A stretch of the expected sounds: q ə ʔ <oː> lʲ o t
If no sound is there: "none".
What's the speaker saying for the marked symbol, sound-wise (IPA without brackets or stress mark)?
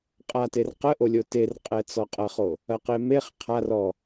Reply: o